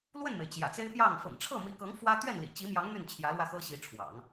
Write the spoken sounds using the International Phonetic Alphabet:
lwə˥˩nme˩ɪ̯ t͡ɕjä̰˨˩t͡se˥ɪ̯pjɑ˥˩ŋ fɤ̰˨˩ŋʈ͡ʂʰɤ˥˩mi˧˥kɤ˧˥ŋ fwä˥ t̪ɥɛ˥˩nlḭ˨˩t͡ɕi˧˥mjɑ˧˥ŋ n̪y˥˩nt͡ɕʰjä˧˥lwä˧ xɤ˥ɕi˧˥ʈ͡ʂʰwɑ̰˨˩˦ŋ

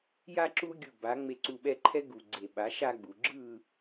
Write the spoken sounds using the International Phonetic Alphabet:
ja˦ ǁu˦ ɡʲu˨˩ba˩˧ ŋ͡me˨˩ǀu˨˩ɓɛ˦˨ǃʰɛ˦ ɡu˨˩ɡ͡ǀe˨˩ɓa˩˥ ʃa˦ɡ͡bu˩˧ ɡ͡ǁɯ˦˨

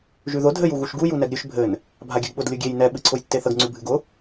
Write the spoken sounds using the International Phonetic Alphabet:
ʒʉðʊ dʱɘj uɣuʃɡu junɛɡɾʲʉʃ bʱɘn | bʱaɡʲɘɡɓʊd lʲʊɡʲej nɛ ɓɨǀʰʊjtːeθəɡ ŋ͡ǀʉbʱɨɡʊ

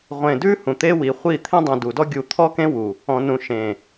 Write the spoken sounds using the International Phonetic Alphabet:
ʁʷẽ˨dʉ˦ hũ˨t̪e˦wi˨χʷi˦˨ t̪ʰẽ˦dˤũ˨du˨dɔ˦ ɡʲu˨t̪ʰɔ˦kẽ˦ wu˨ | ɔ̃˨nũ˨ʃẽ˨

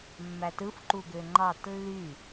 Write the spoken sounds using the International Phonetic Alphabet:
mːætɯf ǃuɡøŋ͡ǃɑt lːy

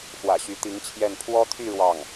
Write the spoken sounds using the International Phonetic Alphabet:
xwä̰˨˩ɕy˧˥t̪i˧˥ŋt͡ɕʰjɛ˥˩n pʰwɔ˥t̪ʰy˥˧ ɻwɑ˥˩ŋ

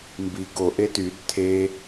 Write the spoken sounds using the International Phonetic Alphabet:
mbi ɡo ʔetyd tʰe

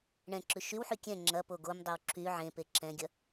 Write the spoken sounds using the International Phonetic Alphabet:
ɳɛ̃ǁʉ ʃywħy kʲɛ̃ ŋ͡ǁɐpo ɡomdˤɛw ǁʰy ʕẽ peǁɛ̃ɡʲɐ

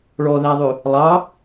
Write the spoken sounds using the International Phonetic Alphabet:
ɭɔðæðˤʉ | lˠɑ

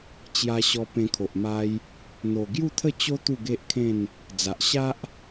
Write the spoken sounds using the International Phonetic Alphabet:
t͡ɕja˧ɕɔ˧ pẽ˧kʰo˨ʔ ma˧j | n̪o˨˩ɡju˥˧t̪ʰə˥˧t͡ɕo˦ t̪u˥˧ɡe˦ʔkʰẽ˥˧n | d͡za˨ʔɕa˦ʔ

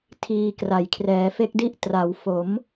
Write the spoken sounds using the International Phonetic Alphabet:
tʰiː˧kra˨˩j kʰrɛː˩˦fe˦˥k̚di˥˩ʔ tra˩˦wfo˩˦m

